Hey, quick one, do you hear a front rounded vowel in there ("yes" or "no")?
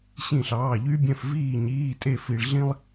yes